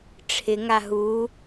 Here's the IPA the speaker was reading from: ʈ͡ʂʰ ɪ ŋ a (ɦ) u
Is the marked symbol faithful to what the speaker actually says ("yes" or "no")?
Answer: yes